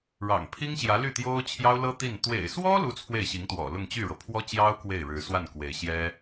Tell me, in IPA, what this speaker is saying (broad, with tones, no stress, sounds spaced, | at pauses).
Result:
ɻ ɑ̰˨˩ ŋ pʰ i˥ ŋ ɕ j ä˧˥ l y˥˩ t̪ j o˥ ʊ̯ t͡ɕʰ j ɑ˥ ʊ̯ l ɤ˥ t̪ i˥˩ n t̪ w ḛ˨˩ ɪ̯ s w ɔ˥ l u˥ t͡sʰ w e˥˩ ɪ̯ ɕ i˧˥ ŋ t̪ w ɔ̰˨˩ l ʊ˥˧ ŋ t͡ɕ y˥˩ ɻ ɤ˩ pʰ w ɔ˥ t͡ɕ j ɑ˥ ʊ̯ k w e˥˩ ɪ̯ ɻ ɻ̩˧˥ s w a˥˩ n k w e˧˥ ɪ̯ ɕ j ɛ˥